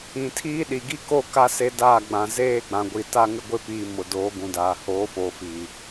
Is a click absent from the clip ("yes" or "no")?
yes